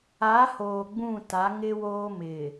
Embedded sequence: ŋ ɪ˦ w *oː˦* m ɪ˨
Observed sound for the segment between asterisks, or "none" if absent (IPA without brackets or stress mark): oː˦